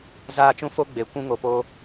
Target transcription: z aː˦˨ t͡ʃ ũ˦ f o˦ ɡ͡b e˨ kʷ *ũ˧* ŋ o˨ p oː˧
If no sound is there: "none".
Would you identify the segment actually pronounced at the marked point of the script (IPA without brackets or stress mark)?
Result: ũ˧